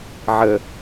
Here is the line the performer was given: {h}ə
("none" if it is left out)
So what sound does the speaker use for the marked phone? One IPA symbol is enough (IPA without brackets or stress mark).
ʕ